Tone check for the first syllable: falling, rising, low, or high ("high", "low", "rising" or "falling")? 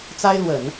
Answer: high